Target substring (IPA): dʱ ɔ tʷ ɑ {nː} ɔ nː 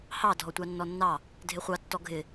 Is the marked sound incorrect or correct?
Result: correct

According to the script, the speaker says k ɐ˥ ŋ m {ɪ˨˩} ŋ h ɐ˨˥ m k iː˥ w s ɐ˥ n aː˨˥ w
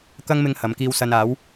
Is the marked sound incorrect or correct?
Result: incorrect: ɪ˧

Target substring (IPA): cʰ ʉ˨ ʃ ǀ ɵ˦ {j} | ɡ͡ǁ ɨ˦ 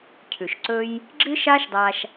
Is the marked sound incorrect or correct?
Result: correct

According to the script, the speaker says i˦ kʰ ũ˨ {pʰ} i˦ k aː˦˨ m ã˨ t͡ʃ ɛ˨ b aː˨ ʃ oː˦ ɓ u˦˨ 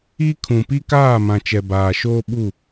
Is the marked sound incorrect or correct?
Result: incorrect: p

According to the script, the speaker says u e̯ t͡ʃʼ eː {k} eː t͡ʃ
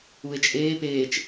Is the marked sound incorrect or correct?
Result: incorrect: p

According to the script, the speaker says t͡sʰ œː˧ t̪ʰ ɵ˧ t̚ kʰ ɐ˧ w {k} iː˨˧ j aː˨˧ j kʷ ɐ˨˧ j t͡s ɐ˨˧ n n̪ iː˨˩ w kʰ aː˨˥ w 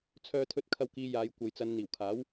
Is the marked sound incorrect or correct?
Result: correct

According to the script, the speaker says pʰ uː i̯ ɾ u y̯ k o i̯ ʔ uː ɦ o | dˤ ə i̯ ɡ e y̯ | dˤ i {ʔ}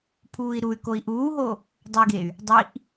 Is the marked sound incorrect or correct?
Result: correct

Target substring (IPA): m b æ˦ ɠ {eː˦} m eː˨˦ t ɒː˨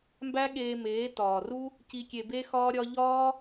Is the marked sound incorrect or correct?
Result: incorrect: eː˧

